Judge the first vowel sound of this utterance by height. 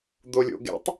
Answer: mid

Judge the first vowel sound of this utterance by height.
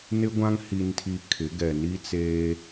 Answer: high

